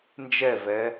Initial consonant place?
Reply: alveolar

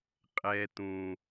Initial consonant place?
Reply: uvular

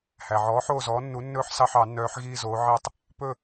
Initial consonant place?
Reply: glottal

